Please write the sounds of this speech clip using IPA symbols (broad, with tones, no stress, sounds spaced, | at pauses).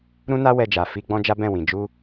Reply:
ɾ ũ˦ n a˦ w ɛ˧ d͡ʒ a˨ f i˧ ɡ͡b ɔ̃˦ d͡ʒ a˦ b ɛ̃˦˨ w ĩ˨ d͡ʒ u˧